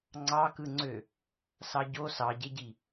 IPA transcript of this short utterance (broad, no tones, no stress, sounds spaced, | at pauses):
ŋ͡ǀ ɑ k ɯ ŋ͡ǀ ø | s ɑ ɟ o s ɑ ɟ e ɟ i